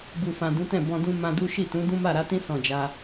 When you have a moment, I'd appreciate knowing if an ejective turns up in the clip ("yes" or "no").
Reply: no